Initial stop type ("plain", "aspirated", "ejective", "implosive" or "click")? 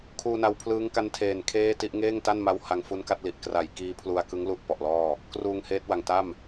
aspirated